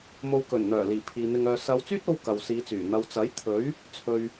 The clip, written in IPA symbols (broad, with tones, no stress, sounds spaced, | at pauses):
m o˨ w k ɵ˨˩ n n̪ œː˨˩ l iː˨˩ pʰ iː˨ n̪ ɪ˧ ŋ œː˧ s ɐ˨˧ w t͡s yː˥ t̚ o˧ w k ɐ˨ w s iː˨˧ t͡s yː˨˩ n̪ ɐ˨ w t͡s ɐ˨˥ j t̪ʰ ɵ˨˥ ɥ | t͡sʰ ɵ˨ ɥ